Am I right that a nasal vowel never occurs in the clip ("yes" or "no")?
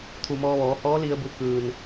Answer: yes